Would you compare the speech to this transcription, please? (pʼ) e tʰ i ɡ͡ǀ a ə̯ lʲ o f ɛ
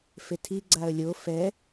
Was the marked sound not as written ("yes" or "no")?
yes